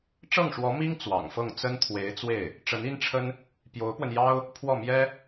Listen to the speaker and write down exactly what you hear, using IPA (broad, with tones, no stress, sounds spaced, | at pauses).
ʈ͡ʂ ɤ˥˩ ŋ ʂ w ɔ˧˥ m i˥ ŋ t͡s w ɑ̰˨˩ ŋ f ɤ˥˩ ŋ t͡s ə˥ n t̪ʰ w e˧˥ ɪ̯ t͡s w e˥˩ ɪ̯ | ʈ͡ʂ ə˧˥ n i˥ n ʈ͡ʂʰ ə˥ n | p j o˧˥ ʊ̯ p w ə˧ n j ɑ˥ ʊ̯ | pʰ w ɔ˥˩ m j ɛ˥